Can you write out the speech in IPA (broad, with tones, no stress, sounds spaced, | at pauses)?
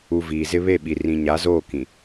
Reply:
u˨ v iː˨ z ɪ˦ β e˦˨ ɓ i˨ r ĩ˨ ɲ a˨˦ z oː˦˨ k ĩ˨